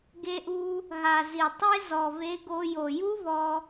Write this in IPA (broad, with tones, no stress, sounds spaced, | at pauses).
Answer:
ɡ e˧ ʔ u˧ | ɦ a˩ z i˩ tˤ e˥ z ɔ˩ v e˧ ɡ o˧ j o˩ j u˥ v ɔ˧